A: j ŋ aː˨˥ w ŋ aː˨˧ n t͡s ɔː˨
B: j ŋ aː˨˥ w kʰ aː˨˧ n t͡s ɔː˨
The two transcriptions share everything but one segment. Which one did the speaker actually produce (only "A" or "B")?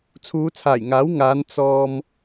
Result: A